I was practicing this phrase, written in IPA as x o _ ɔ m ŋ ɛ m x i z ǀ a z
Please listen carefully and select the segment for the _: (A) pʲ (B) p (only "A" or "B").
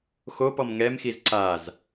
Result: B